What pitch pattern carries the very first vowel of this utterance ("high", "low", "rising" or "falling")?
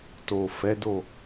low